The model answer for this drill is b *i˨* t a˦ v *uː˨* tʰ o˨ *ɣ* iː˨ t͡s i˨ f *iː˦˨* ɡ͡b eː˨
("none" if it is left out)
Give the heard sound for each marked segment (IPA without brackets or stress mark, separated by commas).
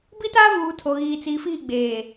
i˦, uː˨, ɣ, iː˦˨